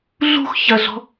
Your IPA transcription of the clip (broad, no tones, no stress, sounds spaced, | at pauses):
ɮ ṳ x ç ɐ ɮ ɔ̤